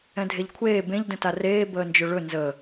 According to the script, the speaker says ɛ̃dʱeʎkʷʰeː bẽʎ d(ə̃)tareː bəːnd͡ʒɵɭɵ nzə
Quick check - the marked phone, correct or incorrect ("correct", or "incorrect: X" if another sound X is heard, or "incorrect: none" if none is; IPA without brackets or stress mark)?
correct